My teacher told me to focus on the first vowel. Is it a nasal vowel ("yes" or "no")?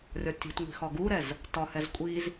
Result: no